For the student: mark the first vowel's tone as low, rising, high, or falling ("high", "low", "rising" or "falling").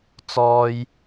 high